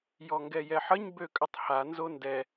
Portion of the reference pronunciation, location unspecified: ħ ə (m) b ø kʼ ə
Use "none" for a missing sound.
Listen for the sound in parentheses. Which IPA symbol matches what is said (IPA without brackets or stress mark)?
ɲ